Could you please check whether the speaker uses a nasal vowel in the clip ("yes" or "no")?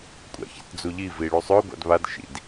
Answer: no